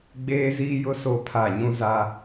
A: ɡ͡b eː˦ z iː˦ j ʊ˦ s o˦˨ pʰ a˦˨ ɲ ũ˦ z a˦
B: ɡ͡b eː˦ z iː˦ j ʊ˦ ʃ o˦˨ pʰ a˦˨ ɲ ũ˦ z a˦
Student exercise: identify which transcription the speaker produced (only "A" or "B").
A